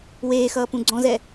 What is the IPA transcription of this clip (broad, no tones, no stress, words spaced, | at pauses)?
weːxʌː pũɡ͡ǀɔ̃zɛ